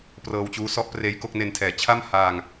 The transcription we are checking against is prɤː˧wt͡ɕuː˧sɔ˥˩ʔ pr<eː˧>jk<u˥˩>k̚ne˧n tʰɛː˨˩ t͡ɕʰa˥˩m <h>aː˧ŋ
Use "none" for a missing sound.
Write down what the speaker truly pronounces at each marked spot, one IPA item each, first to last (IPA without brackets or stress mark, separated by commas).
eː˧, o˥˩, h